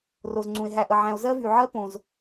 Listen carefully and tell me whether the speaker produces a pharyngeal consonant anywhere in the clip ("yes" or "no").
yes